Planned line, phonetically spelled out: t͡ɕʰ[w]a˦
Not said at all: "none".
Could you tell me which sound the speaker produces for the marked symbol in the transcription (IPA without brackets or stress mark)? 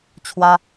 w